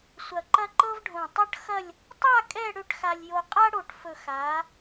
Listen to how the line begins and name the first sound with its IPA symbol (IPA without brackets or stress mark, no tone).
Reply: sʷ